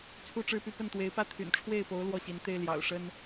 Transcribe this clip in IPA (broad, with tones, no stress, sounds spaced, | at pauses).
t͡sʰ u˥˧ ʈ͡ʂ ɻ̩˥˧ p y˥˧ p ə˥˩ n t̪ w e˧˥ ɪ̯ p ä˥ t̪ʰ y̰˨˩ n ʈ͡ʂʰ w e˥˩ ɪ̯ p o˧˥ ʊ̯ l w ɔ˥˩ ɕ i˧˥ n t̪ e˥ ɪ̯ l j ɑ̰˨˩ ʊ̯ ʂ ə˥ n